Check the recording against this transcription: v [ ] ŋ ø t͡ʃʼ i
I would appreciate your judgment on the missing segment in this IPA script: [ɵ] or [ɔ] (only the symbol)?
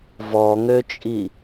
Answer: ɔ